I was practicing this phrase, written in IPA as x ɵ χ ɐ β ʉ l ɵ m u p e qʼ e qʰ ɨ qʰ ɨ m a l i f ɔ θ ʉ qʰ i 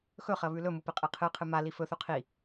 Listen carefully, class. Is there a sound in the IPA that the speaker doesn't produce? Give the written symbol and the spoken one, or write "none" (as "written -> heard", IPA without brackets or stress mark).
ɔ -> ɵ